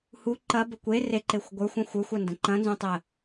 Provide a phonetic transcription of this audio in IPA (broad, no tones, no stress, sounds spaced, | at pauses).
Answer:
h u ǃ ɐ b ə kʷ e r e ǃ e xʷ ɡʷ ə˞ xʷ ɐ̃ xʷ ə˞ xʷ ɐ n d ə̃ ǃ ɐ̃ n z ũ tˤ ə